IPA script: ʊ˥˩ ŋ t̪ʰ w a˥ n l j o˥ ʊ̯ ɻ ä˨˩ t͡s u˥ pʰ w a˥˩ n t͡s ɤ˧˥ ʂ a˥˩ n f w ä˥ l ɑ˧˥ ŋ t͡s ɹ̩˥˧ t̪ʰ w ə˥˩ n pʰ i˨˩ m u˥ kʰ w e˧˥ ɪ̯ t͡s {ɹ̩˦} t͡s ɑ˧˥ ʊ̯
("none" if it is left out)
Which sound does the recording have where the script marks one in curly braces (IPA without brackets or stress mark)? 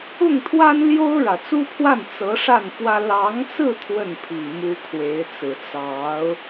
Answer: ɹ̩˨˩